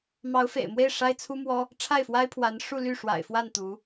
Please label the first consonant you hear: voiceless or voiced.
voiced